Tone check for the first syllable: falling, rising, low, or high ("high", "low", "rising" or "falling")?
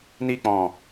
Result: high